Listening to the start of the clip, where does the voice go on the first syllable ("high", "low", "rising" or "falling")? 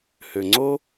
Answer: low